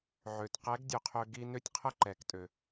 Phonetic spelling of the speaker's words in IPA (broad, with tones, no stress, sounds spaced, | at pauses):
ʕ ø˩ t q ɛ˧˥ ɡ dʲ ø˧ qʰ ø˧ ɡ i˧ n ø˥ tʲ qʰ ə˥ ǃ ɛ˩˧ k tʼ ø˩